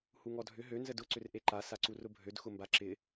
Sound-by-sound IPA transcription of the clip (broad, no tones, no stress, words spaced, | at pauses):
huŋɔdʱʏ ɦø nzədʊ ǀʏrʔeǃa saǀurʊbʱød xʊmbaǁɪ